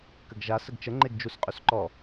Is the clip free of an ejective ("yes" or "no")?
no